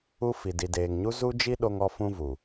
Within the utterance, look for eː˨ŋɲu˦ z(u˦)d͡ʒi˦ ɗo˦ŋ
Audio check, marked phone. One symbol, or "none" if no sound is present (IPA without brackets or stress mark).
u˦